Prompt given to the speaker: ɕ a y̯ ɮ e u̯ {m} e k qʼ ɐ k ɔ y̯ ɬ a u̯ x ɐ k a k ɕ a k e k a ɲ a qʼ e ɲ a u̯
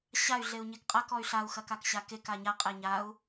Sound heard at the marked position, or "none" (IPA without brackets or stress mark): ɲ